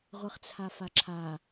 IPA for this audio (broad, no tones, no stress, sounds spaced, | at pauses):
ʁʷ ɨ χ t͡sʰ a f a ǁʰ a